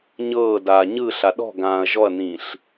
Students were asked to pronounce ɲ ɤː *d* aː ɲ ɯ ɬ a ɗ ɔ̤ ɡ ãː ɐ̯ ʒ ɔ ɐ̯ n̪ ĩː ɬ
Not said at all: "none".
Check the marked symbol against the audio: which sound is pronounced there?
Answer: d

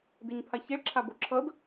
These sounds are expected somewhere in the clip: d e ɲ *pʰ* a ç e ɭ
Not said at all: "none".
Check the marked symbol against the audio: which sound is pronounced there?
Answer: pʰ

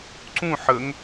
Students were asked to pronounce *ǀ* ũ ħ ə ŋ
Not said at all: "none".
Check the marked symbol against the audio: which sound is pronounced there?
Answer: ǀ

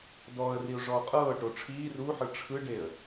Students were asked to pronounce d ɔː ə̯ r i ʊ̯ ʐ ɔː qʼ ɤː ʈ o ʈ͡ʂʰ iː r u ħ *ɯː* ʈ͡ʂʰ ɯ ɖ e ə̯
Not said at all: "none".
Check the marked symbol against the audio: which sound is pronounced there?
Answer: ɯ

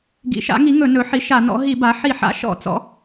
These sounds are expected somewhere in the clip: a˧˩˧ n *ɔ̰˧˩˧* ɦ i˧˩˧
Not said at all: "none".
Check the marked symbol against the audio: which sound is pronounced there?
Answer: ɔ̰˩˥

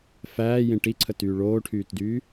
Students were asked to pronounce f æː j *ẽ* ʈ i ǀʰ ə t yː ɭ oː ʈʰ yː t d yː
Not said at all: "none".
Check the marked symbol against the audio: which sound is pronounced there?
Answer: ẽ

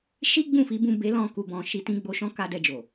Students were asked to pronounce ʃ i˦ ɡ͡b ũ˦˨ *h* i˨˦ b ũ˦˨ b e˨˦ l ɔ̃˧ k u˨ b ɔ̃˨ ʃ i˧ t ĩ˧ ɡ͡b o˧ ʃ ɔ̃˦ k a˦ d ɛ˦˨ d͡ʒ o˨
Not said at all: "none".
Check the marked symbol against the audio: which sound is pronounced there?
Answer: f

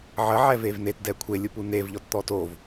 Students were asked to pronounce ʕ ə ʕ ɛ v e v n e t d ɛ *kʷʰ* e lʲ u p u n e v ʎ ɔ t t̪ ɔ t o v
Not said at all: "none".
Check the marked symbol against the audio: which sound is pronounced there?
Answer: kʷʰ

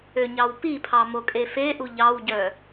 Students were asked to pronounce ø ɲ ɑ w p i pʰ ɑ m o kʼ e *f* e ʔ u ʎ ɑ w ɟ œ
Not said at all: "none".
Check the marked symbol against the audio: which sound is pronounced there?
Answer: f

